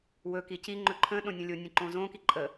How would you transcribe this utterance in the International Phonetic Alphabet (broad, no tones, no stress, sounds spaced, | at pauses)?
w ɵ k i c i ŋ͡ǃ ɵ ǃʰ ə̃ ɗ õ nʲ ə̃ lʲ o nʲ ə̃ ǃ õ z õ k i ǃʼ ə